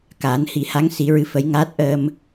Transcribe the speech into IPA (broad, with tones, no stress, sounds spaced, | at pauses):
k aː˨˩˦ n h i˨˩˦ h a˧˥ ŋ s i˨˩˦ ɹ ɨ˧˥ f ə˧˥ j ŋ aː˦˥ t̚ ʔ əː˧ m